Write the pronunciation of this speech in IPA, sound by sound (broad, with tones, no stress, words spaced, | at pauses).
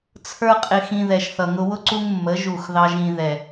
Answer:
t͡sʰə˞˦qʼɪ˧xĩ˧ ðɛ˨ʃθʌ˨ŋʊ˧wʊ˦ ǀu˦ŋmːə˨˦ ʒu˦˨xðɑ˦ʒ ĩ˧ ðɛ˨